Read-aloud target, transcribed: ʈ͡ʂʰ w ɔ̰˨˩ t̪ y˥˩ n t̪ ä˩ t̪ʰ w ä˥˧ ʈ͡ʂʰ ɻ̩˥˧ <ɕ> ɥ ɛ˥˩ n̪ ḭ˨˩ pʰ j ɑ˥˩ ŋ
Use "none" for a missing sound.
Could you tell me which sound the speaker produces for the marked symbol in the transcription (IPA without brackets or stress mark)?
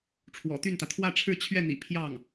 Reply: t͡ɕʰ